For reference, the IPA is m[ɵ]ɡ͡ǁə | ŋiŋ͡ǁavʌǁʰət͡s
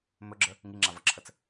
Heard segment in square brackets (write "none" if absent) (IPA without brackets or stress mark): ɵ